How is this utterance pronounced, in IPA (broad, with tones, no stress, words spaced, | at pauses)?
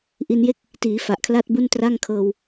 ʔi˧nje˥˩k̚ | tiː˩˦ fa˨˩ʔkʰla˥˩t̚bu˥˩ntra˥˩ŋ kʰɤː˧w